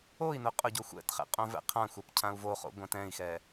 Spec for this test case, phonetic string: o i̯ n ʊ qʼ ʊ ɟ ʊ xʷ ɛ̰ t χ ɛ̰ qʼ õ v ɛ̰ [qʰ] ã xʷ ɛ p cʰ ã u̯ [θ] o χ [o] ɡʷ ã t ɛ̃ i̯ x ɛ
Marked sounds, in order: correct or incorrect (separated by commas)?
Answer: correct, incorrect, incorrect